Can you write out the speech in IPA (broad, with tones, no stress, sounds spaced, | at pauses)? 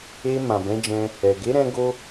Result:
e˧ m ã˨ b ɛ̃˨˦ d͡ʒ ɛ̃˧ | ɛ˨ ɡ e˨˦ ɾ ɛ̃˧ ɡ o˦